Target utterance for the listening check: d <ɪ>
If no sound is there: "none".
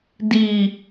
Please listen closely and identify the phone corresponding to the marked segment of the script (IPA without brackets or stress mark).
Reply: i